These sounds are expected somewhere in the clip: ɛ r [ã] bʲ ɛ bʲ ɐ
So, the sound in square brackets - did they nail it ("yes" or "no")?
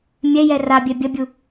no